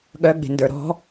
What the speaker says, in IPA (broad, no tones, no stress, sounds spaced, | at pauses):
ɠ œ ɡ͡b e̤ n d ə˞ ɾ ɔ̤